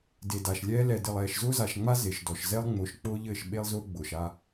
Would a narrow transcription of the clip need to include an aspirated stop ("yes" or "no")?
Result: no